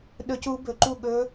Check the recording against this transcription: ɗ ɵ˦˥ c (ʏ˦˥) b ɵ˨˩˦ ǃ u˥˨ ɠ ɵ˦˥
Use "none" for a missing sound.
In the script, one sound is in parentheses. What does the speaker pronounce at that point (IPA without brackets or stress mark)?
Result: u˦˥